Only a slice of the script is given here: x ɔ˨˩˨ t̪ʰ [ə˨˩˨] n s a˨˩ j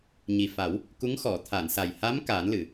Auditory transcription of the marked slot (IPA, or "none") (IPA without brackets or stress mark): a˨˩˨